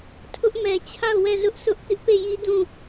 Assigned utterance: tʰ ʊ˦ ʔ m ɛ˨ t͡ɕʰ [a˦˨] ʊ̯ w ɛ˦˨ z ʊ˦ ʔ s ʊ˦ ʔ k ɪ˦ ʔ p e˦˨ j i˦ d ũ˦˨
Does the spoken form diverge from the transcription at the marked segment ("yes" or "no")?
no